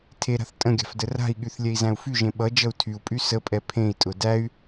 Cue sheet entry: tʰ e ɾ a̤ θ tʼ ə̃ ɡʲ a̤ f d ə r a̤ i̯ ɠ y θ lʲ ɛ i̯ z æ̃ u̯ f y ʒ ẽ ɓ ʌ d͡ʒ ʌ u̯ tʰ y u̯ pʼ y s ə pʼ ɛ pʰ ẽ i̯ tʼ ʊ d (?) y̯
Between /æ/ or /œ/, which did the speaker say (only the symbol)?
æ